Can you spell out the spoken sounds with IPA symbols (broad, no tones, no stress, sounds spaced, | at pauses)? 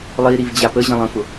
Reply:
lˠ i ɾ i v d͡ʑ a p ə ʑ ə̃ lˠ ə̃ f ʊ